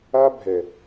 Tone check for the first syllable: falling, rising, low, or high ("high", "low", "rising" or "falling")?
high